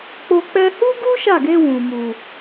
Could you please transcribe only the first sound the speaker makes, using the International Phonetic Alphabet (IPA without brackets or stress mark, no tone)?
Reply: k͡p